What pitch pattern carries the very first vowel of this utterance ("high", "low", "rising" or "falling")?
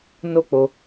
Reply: high